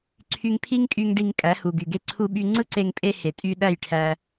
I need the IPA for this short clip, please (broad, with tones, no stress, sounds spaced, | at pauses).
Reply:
ǀʰ y˧ ŋ pʰ i˦ ŋ kʼ y˧ ŋ ɖ i˧ ŋ kʼ æ˨˦ h u˨ ɡ y˨ ɡ e˧ ǀʰ u˧ ɓ y˧ ŋ͡ǀ ɯ˦ ǀ e˧ ŋ pʼ e˧ h e˨ tʼ y˧ ɗ æ˦˨ j ʈʰ æ˧